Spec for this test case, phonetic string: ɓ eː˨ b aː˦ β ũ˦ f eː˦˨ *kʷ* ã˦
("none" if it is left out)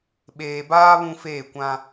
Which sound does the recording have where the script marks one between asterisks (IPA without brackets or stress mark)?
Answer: kʷ